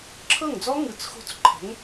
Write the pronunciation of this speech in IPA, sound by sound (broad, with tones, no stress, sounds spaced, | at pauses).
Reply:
ǁʰ ɤ˥˩ ŋ d͡z ɔ˦˥ ŋ ɯ˩˧ t͡s x o̤˧˩ t͡s ǃʰ ɛ̤˩˧ ŋ